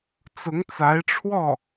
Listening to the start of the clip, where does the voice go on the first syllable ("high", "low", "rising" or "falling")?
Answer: rising